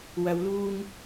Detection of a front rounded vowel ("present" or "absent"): absent